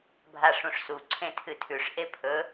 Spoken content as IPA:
bʱ a ʂ ũ ʂ s u ǀʰ ẽ tʰ ɨ tʰ ʉ ʂ ʔ e pʰ ɵ

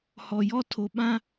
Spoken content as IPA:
h ɔ˨ j ɔ˦ tʰ o˨ ɓ ã˦

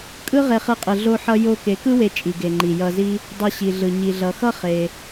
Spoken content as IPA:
kʼ ɯ˦ ʁ e˧ χ ɯ˧ qʼ ɯ˨ ɮ o˧ ħ ʌ˧ j o˧ k e˨˦ k ɯ˦ w e˧ t͡ʃʼ i˨ ɡ e˨ ŋ͡ǃ i˨ j ʌ˧ z i˦ | dˤ ʌ˧ ɕ i˨ ɮ ɯ˨ ɲ i˨ ɮ ʌ˨ x ʌ˦ χ e˧

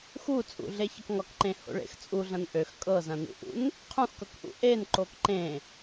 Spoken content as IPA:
x u t͡sʼ ṵ ɮ e ç ɐ k ŋ ɒ k ǃ ẽ h o̰ ɭ ḛ x t͡sʼ u ɮ ɐ̃ n ʔ ø x kʼ ɤ z ɐ̃ n ṵ ʔ ṵ n | qʰ ũ x k ɤ k ʔ ṵ ʔ e n ǃ o k ǃ ẽ

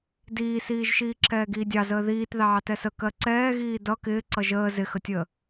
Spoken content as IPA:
d iː s iː ʒ ʃ iː ǁ ɛː ɡ iː dʲ ɑ z əː ð iː t ð ɑː t ɛ s ə k ɜ ǀ ɛː ɣ iː d ʌ k ɪː ǀ ʌ ʒ əː z ɪ x ə tʲ əː

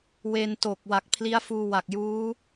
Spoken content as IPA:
w e˧ n t o˨˩ k̚ w a˨˩ k̚ pʰ l i˦˥ a̯ f uː˧ w a˨˩ k̚ j uː˦˥

